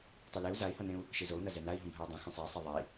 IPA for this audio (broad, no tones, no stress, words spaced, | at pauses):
tˤileu̯ zai̯hʌnẽu̯ | ʃizou̯nʌ zɛnai̯ɦũ bʱɛu̯dˤĩ xũsˤei̯ sˤɛðˤɛi̯